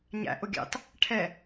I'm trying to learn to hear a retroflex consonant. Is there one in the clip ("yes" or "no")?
yes